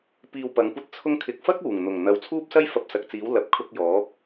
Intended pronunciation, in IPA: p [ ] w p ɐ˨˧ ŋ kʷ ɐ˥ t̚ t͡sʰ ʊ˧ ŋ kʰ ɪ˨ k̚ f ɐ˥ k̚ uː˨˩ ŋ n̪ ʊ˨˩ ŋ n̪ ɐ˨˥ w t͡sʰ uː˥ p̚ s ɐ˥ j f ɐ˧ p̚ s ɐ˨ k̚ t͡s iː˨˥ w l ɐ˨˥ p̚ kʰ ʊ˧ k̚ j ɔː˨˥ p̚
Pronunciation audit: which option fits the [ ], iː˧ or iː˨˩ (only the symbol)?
iː˧